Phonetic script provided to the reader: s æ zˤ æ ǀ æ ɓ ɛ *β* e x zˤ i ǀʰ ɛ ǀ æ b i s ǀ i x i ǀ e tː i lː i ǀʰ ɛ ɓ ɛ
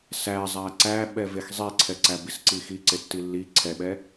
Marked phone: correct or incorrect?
incorrect